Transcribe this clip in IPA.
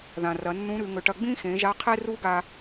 ð ã˩ r ɐ˩˧ nː ũ˧˥ ɾ ʉ˩˧ ŋ ɵ˩˧ ʈ ɐ˧ ɡ͡b ĩ˥ x ẽ˩˧ ʒ a˧˥ qʰ e˥ r u˥ ɡ a˧

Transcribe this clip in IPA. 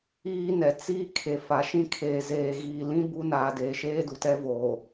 iː˦ n ɛ˨ t͡s iː˦ kʰ e˨ f a˨ ʃ ĩ˦ kʰ eː˨ z eː˨ ɣ iː˨ l ĩ˦ b u˦ n aː˨ d eː˨ ʃ eː˦ d u˨ t ɛ˦ v oː˨

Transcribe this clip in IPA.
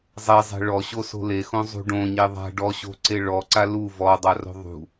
zˤ e zˤ e̤ ɭ ɔ ɕ o s o̤ l e x õ zˤ ṳ ɖ õ ɲ e ðˤ a̤ ɖ ɔ ɕ o̤ ǀ e ɭ ɔ ǀ a l u v ɔ dˤ a r o̤ ðˤ ṳ

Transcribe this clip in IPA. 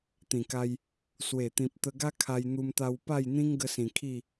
t̪ ĩ˨˩ k a˧ j | s w e˨˩ t̪ ĩ˨ p̚ t̪ ə˧ ɡ a˦ kʰ a˧ j n̪ u˧ m t̪ a˧ w p a˥˧ j n̪ ĩ˦ ŋ ɡ ə˧ s ĩ˨˩ kʰ i˥˧

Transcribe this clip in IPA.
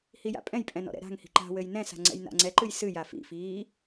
h i j a̰ pʼ ɛ̃ j pʼ ɛ̃ n ɔ̰ ɾ ɛ̰ ɾ a̤ ŋ h i̤ ǃ a̤ w ɘ j n ɛ̃ s a̤ ŋ͡ǀ ɛ̰ j n a̰ ŋ͡ǀ ɛ ǃ ɨ j s ɨ j a f ḭ f iː

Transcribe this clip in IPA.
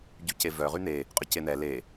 ɟ y c e v œ ʁ y n̪ e | qʼ ʏ c e n̪ ɛ l e

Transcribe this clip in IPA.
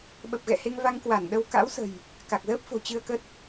ɓ ə˨˩ p̚ ɣ ɛ̰˧˨ h e˧ ŋ v a˧ ŋ k w a˧˩ n ɗ ə˧ w k a̰˧˥ w s ə̤˨˩ j | k a˨˩ k̚ z əː˦˥ p̚ f o̤˨˩ t͡ɕ ɨ˧ ə̯ k ə˦˥ t̚

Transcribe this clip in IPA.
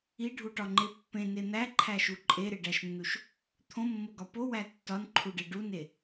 i ɖʱ u ʈ ɒ ŋ͡ǃ e pː ẽ n e n̪ æ ǃʰ æ ʃ u ǃʼ e ɾ e ɖ æ ʃ nː u ʃ | t̪ʰ õ mː o ɡ ɒ p o w æ tː ɒ n ǃʰ u ɖ e ɖ u n e

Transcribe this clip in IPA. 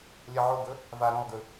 lʲ ɐ ʕ o ɡ ɵ | v a ɾ õ lˠ ɡ ʉ

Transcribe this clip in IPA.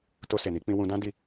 t o˧ s e˨ n i˨˦ k͡p ĩ˧ w ũ˧ d ã˦ d i˦˨

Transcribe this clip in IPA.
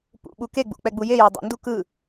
p ṵ ɓ u k e ɡ͡b ṵ k͡p ɛ ɡ͡b u j e j ɛ dˤ ḭ n d u k ɯ

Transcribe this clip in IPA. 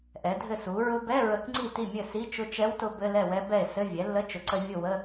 ʔ ɛ˩˥ dʱ ɘ˥˩ s u˩˥ ɹ ʊ˧ b ɛ˧˥˧ ɹ ə˧ k ŋ͡ǀ i˥˩ t i˥˩ mʲ ɘ˥˩ s i˧˥˧ t͡ʃ ʊ˧ t͡ʃ ɛ˧˥ w t ʊ˧ b ɘ˧˥˧ l ɛ˥˩ w ɛ˧˥ b ɛ˥˩ e̯ s ɘ˧˥˧ vʲ ɛ˩˥ lː ə˧˥˧ t͡ʃ ʊ˩˥ ǀ ə˧ vʲ ʊ˥˩ w ə˧˥˧

